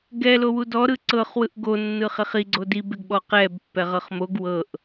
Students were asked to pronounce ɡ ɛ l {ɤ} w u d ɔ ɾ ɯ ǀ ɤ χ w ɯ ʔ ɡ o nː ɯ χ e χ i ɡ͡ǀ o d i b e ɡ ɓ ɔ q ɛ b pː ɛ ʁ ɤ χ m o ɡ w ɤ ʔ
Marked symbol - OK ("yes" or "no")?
no